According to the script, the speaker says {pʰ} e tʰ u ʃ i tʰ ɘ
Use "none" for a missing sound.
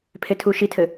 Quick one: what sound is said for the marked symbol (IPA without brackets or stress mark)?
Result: pʰ